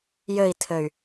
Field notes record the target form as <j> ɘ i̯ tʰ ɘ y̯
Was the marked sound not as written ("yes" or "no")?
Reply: no